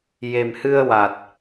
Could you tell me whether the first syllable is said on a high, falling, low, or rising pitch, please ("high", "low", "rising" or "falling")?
low